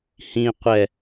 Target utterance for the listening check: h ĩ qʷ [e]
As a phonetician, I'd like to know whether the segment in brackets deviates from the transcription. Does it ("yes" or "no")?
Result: yes